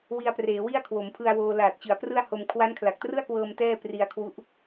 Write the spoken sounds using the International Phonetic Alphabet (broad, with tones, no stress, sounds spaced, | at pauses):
w i˧ a̯ p r eː˩˦ w i˥˩ a̯ kʰ w o˩˦ m pʰ ɯ˧ a̯ w oː˧ l aː˨˩ t̚ t͡ɕ ɯ˩˦ a̯ p r ɯ˥˩ a̯ h o˧ m kʰ w a˦˥ n kʰ l a˨˩ k̚ t r ɯ˥˩ a̯ k w ɤː˧ m t ɛː˥˩ p r i˧ a̯ kʰ w u˦˥ ʔ